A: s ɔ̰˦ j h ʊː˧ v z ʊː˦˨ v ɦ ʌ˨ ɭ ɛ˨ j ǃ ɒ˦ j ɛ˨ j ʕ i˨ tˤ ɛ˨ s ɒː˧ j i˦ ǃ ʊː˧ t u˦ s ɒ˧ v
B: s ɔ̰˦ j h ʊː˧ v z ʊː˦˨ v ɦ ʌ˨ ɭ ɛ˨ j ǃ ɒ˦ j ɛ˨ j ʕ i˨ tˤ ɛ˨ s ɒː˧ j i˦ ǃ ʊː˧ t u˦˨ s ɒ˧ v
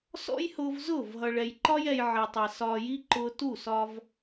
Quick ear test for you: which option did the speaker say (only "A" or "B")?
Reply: B